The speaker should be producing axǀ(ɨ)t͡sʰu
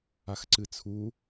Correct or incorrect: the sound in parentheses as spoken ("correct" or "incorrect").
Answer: correct